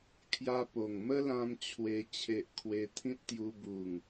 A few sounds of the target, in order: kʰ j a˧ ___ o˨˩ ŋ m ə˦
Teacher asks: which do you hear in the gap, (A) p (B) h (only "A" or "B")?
A